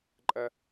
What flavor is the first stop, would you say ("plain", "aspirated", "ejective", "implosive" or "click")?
click